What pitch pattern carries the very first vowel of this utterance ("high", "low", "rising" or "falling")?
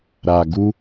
low